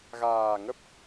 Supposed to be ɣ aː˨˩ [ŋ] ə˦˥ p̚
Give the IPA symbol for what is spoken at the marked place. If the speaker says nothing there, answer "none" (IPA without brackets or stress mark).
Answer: ŋ